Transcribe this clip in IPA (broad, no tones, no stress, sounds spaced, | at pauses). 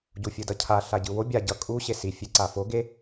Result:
ɟ u fʲ ɯ d ʌ cʰ a ɬ a ɟ ɯ w o bʲ a ɟ ʌ kʼ u ɕ e s i fʲ e ǀ a f o ɡ e